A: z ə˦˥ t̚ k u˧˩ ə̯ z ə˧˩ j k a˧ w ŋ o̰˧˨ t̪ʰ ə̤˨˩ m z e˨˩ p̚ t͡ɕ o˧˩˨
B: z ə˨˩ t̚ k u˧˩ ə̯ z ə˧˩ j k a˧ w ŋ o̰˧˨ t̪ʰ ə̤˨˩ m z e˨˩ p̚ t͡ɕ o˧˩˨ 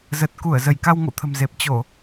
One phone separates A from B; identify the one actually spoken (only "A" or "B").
B